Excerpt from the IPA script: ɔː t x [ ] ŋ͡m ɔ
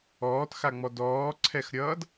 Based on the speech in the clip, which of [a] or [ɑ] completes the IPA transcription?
a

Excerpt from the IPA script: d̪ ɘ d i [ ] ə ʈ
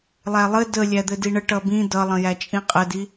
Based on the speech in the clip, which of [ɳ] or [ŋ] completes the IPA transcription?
ɳ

